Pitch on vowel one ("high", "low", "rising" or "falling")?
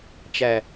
low